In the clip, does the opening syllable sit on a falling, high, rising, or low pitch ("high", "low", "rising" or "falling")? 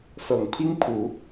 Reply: low